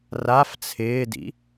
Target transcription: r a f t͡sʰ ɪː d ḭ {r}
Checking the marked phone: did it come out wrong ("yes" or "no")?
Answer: yes